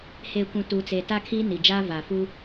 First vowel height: mid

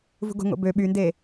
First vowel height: high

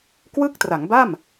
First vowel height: high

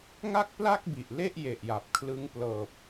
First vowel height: low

